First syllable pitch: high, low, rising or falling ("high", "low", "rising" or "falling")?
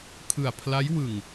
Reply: low